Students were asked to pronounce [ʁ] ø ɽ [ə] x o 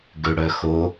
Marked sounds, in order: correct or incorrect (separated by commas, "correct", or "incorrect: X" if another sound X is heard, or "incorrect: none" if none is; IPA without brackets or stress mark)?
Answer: incorrect: ɡ, incorrect: œ